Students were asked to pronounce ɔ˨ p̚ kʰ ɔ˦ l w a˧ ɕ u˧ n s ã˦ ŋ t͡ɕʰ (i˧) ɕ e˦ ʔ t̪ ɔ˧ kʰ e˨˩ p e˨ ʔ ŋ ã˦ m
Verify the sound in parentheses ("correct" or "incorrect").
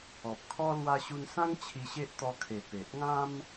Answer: correct